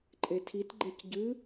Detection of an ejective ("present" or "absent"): present